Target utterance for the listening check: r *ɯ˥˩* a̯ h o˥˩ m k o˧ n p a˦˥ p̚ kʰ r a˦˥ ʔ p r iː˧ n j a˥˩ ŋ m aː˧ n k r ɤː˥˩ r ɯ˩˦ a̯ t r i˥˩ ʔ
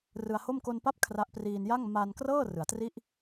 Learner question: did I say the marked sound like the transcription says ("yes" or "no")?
no